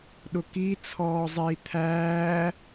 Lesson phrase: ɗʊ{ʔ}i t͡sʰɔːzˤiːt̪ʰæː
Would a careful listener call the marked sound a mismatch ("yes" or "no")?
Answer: yes